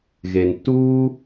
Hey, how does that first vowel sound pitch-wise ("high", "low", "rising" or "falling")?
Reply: low